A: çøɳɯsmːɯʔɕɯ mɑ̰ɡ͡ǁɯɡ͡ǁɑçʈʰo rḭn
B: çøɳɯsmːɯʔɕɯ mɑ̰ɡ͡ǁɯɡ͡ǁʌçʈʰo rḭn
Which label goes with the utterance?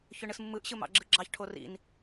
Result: A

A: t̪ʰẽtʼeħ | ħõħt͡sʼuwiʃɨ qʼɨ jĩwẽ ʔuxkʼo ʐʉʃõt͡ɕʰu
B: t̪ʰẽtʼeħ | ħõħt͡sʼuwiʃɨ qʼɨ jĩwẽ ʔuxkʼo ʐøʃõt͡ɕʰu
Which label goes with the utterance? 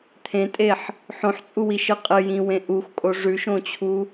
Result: A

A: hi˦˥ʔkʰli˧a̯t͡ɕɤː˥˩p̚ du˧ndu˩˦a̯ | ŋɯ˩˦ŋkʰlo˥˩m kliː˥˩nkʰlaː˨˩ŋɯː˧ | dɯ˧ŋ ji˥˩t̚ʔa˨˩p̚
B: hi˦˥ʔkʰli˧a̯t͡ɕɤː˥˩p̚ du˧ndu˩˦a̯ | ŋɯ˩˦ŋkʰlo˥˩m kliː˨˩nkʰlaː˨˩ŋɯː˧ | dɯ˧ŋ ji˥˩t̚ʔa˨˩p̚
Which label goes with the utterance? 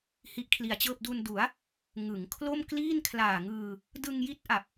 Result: A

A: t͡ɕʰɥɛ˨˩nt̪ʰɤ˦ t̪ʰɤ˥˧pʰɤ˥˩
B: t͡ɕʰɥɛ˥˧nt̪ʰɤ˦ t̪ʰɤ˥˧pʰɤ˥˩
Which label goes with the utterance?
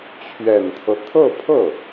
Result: A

